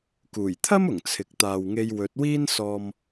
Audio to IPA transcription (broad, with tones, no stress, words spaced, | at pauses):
kuː˨˩jt̪ʰɐ˥mʊ˨˩ŋ t͡sʰɪ˨k̚ t̪aː˨wŋe˧jwɵ˨˥t̚wiː˥n sɔː˧m